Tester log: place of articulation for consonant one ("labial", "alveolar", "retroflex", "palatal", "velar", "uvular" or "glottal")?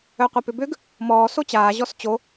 uvular